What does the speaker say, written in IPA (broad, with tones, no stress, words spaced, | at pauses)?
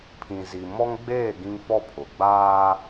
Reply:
pʰĩ˨zi˨mɔ˦ŋɡ͡beː˦˨ ɡĩ˦ŋfɔ˦pʰʊ˨ ɡ͡baː˦